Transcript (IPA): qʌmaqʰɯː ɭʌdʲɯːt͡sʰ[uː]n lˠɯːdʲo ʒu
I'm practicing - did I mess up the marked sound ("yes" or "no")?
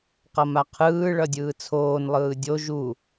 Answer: yes